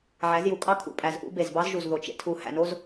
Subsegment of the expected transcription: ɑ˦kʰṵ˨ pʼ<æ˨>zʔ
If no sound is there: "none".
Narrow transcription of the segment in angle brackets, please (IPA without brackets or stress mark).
æ˨